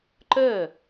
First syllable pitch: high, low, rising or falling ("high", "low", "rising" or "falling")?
falling